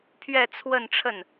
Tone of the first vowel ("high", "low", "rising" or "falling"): falling